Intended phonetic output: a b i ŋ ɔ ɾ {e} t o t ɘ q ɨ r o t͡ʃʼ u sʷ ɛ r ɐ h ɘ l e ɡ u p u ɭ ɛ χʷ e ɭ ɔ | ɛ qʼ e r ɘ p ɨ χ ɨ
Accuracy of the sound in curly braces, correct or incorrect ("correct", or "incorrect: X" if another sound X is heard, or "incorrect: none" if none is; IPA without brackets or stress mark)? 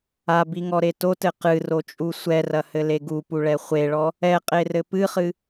correct